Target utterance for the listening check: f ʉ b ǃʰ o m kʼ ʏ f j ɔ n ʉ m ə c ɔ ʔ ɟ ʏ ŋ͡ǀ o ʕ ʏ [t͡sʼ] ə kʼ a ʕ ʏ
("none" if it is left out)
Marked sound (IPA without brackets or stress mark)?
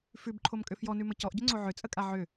t͡sʼ